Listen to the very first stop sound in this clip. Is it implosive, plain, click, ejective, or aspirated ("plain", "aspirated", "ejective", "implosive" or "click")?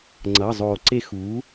click